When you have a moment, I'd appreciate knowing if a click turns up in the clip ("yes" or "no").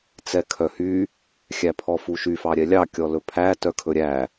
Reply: no